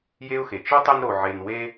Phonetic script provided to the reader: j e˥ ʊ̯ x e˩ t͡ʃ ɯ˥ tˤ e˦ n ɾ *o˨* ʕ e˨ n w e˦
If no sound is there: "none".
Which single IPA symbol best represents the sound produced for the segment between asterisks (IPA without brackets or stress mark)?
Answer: o˨